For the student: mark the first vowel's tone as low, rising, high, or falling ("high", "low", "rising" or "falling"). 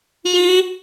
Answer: high